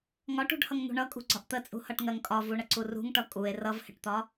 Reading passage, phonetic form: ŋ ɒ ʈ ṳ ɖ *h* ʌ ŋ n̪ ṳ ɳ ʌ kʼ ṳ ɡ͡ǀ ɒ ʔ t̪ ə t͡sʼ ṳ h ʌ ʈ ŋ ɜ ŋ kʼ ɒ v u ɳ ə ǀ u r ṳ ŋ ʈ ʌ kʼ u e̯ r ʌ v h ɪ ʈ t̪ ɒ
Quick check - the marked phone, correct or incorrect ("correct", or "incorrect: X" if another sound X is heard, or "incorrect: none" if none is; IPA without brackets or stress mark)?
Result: correct